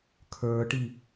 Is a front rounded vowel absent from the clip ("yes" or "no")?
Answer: yes